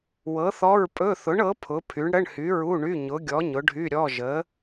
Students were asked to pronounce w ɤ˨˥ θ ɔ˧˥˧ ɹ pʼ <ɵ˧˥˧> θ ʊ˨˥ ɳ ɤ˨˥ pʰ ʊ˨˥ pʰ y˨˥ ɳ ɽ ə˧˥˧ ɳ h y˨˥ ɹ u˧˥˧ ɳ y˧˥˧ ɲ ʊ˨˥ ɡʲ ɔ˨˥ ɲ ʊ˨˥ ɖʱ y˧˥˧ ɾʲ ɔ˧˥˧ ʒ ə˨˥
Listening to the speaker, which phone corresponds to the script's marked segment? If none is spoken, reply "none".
ɵ˧˥˧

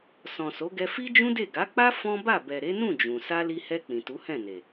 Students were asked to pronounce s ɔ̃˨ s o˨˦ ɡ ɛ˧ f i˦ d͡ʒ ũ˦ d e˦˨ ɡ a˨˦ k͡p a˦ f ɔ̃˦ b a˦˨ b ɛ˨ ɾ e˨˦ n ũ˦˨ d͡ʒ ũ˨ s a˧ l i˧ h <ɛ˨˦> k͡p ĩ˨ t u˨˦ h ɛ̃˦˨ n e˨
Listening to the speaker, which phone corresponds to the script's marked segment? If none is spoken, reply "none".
ɛ˧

